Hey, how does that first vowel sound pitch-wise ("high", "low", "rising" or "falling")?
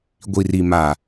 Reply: low